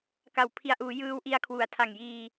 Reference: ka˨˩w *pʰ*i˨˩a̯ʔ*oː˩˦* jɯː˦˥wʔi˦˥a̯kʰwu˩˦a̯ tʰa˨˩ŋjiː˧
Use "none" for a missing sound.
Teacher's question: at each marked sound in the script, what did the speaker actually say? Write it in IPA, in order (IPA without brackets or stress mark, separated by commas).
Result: pʰ, uː˩˦